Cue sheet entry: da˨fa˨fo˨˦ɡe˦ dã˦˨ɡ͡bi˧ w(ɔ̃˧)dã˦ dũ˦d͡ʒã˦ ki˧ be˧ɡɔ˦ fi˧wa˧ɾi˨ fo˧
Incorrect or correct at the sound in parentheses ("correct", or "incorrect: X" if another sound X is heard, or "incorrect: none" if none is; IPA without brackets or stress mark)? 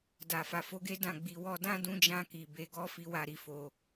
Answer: incorrect: ɔ˧